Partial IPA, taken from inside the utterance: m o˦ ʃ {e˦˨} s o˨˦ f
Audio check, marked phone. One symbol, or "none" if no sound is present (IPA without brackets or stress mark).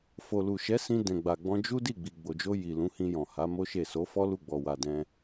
e˦˨